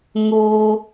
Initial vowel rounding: rounded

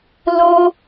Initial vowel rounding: rounded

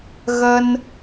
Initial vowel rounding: unrounded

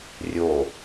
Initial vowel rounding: rounded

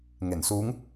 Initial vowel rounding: unrounded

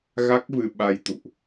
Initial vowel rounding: unrounded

